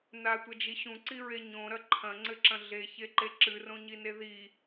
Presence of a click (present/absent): present